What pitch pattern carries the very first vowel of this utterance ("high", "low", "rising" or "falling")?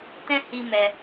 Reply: high